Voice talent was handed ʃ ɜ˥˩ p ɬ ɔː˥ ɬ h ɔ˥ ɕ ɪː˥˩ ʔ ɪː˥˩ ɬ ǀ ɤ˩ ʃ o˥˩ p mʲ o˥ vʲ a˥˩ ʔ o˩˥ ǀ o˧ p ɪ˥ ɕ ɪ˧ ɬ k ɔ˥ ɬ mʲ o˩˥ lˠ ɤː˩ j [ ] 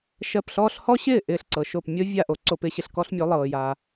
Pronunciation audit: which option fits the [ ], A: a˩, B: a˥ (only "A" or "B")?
A